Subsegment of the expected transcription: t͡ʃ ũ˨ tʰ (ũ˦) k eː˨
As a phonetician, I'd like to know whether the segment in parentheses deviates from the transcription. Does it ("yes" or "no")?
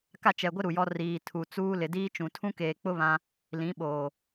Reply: no